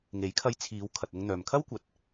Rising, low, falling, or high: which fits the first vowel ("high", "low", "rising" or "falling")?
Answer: rising